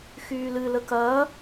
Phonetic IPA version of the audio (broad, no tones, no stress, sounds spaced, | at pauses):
x yː l ɨ l ə k ɐː